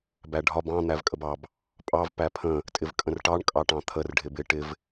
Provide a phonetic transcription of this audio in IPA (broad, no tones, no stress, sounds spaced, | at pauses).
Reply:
b æ ɖʱ ɒ b ɑ̃ n̪ æ v kʼ ə b ɑ b | pʼ ɑ v p æ pʰ ə̃ | tʼ ɪ v kʼ ə̃ r ʈ ɑ ɳ kʼ ɑ ʈ ɑ̃ t̪ʰ ə r ɖʱ ɪ b ɪ ʈ ɪ v